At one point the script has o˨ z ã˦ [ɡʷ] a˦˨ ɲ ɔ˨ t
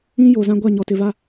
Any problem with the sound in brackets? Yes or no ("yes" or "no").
no